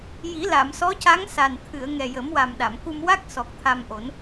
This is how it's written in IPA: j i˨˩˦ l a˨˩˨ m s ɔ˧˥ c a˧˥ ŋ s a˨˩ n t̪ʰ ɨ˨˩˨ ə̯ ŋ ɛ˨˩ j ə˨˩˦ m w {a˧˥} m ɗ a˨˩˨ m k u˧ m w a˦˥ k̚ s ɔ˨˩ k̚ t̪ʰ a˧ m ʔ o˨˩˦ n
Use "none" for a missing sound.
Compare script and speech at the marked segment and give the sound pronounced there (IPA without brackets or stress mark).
a˨˩